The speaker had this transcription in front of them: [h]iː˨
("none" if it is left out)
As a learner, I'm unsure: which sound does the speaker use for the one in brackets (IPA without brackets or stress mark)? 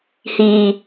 h